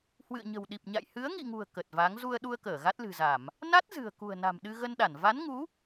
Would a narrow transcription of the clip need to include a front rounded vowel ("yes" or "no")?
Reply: no